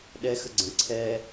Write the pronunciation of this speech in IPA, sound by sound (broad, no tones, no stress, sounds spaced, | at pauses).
ɗ ɛ x ə ɡ͡ǀ ə̃ ǀʰ ɛ